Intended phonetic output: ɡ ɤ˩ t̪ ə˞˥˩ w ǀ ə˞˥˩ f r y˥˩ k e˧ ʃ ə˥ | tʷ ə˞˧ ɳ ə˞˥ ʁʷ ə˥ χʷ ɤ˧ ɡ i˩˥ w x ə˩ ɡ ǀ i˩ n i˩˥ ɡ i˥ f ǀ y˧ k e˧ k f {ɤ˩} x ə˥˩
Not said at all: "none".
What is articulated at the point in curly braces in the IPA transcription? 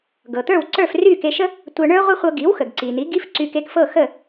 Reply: ɤ˥˩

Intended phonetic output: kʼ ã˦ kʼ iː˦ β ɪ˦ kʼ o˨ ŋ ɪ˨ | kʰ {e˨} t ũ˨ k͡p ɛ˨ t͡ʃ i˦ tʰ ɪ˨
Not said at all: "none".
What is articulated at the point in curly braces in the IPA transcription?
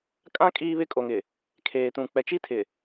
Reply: eː˨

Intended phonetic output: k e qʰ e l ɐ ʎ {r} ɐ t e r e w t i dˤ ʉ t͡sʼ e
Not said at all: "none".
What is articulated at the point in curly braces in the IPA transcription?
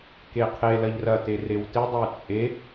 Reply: r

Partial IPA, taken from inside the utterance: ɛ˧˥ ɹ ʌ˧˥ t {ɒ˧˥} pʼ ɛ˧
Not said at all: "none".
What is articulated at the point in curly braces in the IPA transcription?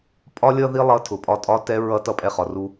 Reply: ʌ˧˥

